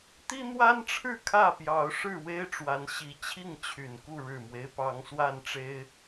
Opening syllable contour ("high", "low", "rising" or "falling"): high